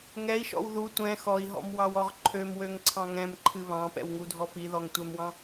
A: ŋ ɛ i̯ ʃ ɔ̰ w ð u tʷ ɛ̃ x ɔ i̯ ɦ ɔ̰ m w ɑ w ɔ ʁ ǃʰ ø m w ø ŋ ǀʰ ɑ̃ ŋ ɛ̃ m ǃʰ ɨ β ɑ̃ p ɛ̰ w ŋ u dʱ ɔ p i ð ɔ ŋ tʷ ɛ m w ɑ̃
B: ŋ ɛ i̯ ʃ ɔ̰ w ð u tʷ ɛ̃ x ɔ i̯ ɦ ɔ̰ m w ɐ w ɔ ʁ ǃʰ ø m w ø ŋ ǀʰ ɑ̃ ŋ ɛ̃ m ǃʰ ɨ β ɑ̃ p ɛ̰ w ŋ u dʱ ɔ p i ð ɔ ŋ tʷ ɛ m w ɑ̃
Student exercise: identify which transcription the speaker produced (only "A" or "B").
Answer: A